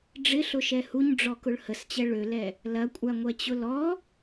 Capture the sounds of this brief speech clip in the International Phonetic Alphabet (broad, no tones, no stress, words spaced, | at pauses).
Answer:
ɖ͡ʐɪɬʊʃɛ huɲɖ͡ʐɔkʊɭ həst͡ɕɛ ɭølɛ | lɐkʷʼaŋʷɛt͡ɕʊ lɔ